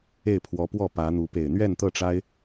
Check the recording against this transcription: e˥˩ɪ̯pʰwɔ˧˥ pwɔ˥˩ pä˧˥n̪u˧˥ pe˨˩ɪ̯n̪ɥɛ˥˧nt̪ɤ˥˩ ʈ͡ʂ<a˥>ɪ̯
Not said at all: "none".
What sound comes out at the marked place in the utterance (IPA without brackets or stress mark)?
a˥